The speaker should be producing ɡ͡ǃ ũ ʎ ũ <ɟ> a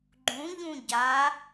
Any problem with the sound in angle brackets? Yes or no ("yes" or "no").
no